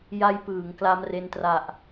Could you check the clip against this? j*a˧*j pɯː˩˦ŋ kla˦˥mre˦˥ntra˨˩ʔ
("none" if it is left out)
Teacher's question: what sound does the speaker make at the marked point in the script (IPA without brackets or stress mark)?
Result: a˦˥